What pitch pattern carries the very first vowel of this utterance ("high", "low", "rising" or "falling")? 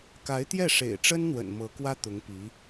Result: rising